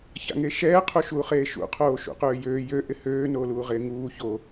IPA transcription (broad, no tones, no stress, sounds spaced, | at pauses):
ç a̰ ŋ e ʃ ɛː qʰ u ʃ uː χ eː ʃ ṵ qʰ oː ʃ ṵ q øː j øː j ø ʔ ɪ h øː n oː l uː ʁ ɪː ŋ uː ç o